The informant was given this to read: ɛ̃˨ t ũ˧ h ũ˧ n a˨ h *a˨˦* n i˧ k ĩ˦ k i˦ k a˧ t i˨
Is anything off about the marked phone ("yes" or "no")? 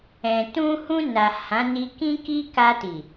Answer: yes